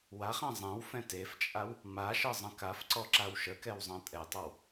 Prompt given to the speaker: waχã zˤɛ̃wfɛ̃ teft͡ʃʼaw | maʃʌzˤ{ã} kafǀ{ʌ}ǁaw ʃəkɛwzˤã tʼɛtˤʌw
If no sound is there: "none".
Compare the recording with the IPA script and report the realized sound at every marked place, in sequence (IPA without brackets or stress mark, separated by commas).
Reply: ə̃, ɔ